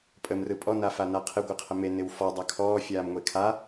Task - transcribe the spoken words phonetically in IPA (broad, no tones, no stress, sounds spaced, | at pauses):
pʼ ə m r ɯ pʼ ɔ n a f a n a qʰ ɪ ɡʷ ɪ qʰ ə m e n ɪ w f ɔ dˤ a kʰ ɔː fʲ aː m ŋʷ e kʰ a